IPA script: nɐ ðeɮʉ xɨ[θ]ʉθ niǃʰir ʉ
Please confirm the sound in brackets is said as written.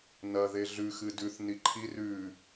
no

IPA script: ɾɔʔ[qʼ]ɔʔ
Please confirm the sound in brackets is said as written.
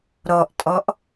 no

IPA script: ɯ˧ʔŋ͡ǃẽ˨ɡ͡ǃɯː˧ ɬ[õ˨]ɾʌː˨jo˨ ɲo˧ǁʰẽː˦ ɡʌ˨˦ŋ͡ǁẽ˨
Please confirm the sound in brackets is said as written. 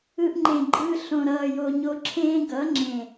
yes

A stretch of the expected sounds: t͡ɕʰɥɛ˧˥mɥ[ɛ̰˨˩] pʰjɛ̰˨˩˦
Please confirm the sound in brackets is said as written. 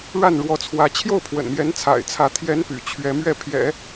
no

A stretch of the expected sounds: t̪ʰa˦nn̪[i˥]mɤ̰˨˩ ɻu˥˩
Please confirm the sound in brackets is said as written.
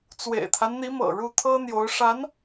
no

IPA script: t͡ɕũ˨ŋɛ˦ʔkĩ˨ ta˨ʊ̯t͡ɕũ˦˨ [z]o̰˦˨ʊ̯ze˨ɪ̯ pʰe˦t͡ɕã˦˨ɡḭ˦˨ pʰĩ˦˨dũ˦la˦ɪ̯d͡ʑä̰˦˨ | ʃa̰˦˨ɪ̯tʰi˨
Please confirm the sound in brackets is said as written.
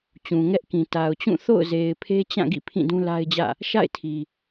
no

